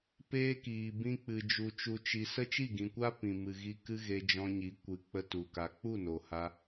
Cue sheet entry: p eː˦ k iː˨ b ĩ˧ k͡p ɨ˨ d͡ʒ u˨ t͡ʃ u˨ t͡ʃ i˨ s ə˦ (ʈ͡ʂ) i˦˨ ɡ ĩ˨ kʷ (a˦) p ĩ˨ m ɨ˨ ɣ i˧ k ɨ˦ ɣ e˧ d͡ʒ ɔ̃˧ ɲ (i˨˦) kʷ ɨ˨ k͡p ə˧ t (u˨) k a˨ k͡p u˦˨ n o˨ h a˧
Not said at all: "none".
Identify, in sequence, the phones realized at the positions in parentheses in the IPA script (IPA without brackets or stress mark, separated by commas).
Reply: t͡ʃ, a˦, i˨˦, u˨